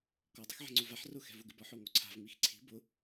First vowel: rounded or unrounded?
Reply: rounded